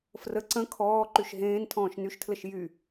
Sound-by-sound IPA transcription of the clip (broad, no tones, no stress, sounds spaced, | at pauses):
f r ə ǀ ə̃ kʰ ɔː ǃ y ʃ ɦ ẽː n tʰ ɔ̃ː ʃ n y ʃ tʰ l ə ʃ j y